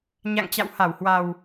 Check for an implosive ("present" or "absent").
absent